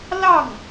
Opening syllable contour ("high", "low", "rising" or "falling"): falling